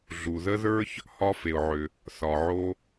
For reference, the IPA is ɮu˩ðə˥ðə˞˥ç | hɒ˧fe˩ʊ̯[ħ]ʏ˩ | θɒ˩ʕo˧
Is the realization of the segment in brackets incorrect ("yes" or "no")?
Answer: yes